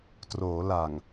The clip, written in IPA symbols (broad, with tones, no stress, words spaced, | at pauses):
troː˩˦la˨˩ŋ